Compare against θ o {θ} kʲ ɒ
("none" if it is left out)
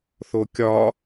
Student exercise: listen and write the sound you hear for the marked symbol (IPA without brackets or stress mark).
none